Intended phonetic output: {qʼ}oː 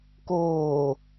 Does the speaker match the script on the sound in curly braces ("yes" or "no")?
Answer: no